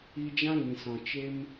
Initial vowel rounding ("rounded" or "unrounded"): unrounded